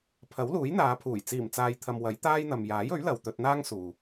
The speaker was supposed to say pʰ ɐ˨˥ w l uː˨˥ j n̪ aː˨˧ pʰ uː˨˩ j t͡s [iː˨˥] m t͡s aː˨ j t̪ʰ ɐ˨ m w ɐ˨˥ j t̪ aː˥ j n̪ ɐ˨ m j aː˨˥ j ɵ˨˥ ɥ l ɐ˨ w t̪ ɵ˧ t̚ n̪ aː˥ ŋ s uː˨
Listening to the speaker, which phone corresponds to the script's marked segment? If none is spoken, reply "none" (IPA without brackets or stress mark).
iː˨˩